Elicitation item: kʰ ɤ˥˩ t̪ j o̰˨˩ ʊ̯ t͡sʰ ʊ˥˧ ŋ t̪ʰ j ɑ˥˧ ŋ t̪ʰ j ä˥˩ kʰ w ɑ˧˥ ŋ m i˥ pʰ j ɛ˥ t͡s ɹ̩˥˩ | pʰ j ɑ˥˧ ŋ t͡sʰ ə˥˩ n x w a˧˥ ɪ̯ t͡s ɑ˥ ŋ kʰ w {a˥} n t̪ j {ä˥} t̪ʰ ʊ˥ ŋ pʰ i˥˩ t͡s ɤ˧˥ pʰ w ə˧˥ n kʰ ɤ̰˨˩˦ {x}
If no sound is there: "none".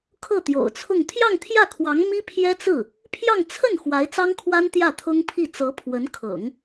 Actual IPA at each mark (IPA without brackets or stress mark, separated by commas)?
a˥, ä˥˩, ŋ